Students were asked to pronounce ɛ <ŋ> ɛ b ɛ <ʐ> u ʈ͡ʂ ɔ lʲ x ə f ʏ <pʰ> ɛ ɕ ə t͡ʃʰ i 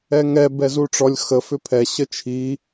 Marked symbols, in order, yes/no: yes, no, yes

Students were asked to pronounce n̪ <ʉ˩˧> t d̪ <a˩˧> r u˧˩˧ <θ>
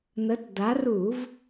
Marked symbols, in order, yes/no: no, yes, no

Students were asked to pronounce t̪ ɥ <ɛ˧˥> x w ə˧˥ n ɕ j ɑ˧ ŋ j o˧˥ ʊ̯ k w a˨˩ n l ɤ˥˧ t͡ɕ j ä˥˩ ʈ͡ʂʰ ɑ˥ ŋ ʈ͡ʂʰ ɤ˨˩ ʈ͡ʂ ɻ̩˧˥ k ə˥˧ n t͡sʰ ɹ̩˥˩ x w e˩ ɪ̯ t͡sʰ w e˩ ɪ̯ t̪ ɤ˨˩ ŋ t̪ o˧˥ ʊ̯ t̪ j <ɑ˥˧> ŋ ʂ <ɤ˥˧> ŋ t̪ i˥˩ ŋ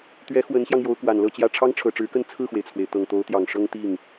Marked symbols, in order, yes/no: yes, no, no

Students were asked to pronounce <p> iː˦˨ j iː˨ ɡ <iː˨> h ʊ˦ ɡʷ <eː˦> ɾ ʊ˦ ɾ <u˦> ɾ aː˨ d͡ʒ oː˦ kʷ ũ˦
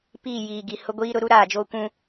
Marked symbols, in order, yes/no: yes, no, no, yes

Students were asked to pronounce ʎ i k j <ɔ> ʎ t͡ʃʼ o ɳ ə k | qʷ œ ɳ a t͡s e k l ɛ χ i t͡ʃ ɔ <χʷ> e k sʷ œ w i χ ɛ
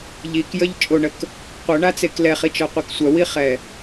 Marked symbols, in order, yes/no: no, no

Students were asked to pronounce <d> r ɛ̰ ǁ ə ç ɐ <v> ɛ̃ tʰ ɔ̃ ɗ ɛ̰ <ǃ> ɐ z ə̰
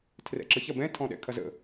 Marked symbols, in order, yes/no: no, no, no

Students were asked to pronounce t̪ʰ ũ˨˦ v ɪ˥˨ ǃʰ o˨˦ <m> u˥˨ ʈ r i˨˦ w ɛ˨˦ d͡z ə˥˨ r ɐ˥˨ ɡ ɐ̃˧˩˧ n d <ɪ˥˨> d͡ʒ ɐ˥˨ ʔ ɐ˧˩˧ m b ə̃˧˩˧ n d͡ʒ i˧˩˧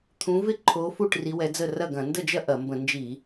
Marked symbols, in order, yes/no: no, no

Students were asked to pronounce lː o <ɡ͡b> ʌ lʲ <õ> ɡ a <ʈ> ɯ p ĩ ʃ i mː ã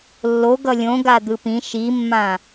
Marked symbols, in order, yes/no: no, yes, no

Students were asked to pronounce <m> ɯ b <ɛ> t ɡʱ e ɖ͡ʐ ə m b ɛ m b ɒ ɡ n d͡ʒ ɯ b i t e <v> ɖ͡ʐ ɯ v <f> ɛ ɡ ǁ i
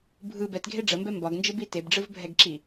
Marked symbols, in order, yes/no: no, yes, no, no

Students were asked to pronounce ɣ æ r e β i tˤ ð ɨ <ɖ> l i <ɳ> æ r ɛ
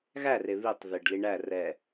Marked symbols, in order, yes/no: yes, yes

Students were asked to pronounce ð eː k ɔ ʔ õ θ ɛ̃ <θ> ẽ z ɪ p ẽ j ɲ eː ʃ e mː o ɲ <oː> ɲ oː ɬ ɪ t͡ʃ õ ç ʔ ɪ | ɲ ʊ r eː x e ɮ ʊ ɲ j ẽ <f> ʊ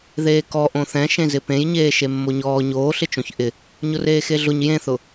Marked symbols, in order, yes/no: no, no, no

